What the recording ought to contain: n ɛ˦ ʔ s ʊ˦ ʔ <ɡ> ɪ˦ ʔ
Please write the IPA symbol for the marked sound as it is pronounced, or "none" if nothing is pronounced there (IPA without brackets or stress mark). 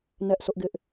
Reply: ɡ